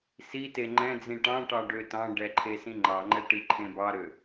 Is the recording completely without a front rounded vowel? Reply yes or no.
no